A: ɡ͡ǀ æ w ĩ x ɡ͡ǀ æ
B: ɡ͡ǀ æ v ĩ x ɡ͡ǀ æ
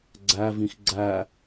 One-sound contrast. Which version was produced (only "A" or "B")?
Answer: B